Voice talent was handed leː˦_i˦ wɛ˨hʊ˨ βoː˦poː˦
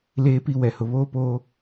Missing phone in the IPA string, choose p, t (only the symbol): p